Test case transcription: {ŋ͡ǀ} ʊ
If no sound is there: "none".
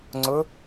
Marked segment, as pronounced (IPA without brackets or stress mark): ŋ͡ǀ